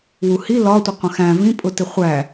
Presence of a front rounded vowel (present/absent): absent